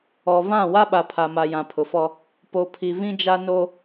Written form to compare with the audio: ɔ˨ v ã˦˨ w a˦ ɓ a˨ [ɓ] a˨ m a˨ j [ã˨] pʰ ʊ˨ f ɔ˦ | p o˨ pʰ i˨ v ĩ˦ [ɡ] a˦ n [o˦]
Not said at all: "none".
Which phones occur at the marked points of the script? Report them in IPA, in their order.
pʰ, ã˨, d͡ʒ, o˦

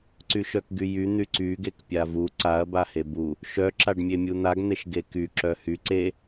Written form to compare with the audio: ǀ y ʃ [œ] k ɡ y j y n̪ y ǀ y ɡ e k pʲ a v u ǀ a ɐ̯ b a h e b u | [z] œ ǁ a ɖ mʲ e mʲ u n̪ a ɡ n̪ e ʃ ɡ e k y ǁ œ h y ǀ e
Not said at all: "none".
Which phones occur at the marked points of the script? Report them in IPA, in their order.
œ, ʃ

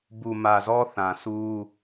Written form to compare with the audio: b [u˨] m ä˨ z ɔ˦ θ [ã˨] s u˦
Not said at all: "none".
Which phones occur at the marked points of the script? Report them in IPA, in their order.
u˨, ã˨

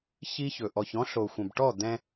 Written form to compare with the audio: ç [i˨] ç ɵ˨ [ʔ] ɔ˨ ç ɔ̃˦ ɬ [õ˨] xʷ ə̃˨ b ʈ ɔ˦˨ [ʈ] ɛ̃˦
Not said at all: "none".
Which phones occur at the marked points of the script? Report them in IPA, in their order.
i˦, ʔ, o˨, d̪

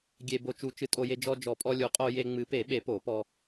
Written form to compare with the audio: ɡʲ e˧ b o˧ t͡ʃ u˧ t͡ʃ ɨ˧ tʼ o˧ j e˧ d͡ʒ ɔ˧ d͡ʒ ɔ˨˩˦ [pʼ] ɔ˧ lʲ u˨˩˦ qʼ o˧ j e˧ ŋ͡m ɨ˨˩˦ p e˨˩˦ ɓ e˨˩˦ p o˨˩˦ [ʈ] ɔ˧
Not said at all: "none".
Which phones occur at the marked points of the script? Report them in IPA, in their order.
pʼ, p

